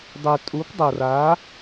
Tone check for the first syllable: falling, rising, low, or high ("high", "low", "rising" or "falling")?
low